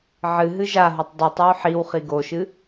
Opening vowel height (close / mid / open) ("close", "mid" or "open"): close